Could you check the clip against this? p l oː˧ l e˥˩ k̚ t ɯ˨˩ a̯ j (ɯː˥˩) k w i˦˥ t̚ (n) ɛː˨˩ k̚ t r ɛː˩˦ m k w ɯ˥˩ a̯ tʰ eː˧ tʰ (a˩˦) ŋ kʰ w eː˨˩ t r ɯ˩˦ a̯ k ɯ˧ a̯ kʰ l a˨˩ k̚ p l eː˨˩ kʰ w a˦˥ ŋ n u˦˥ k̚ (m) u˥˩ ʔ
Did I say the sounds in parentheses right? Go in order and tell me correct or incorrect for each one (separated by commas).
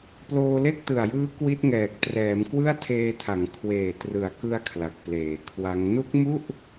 incorrect, incorrect, correct, correct